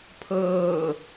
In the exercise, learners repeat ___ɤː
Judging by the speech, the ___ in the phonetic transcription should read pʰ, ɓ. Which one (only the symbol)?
pʰ